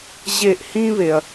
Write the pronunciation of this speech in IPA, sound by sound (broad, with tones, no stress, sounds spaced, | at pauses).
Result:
ʑ e˧˩ ʔ h ĩ˦ β e˩ ɐ̯